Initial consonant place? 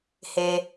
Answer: glottal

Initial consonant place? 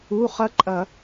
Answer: uvular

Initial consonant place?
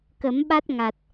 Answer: velar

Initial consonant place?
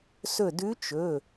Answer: alveolar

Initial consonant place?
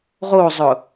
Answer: uvular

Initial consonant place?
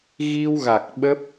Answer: velar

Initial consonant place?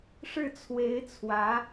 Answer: retroflex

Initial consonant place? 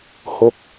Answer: glottal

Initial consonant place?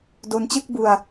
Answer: alveolar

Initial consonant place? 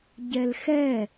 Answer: palatal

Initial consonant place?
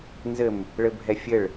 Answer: alveolar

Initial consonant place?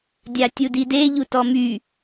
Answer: alveolar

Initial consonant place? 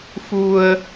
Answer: labial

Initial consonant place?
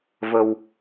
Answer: labial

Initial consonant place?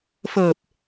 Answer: labial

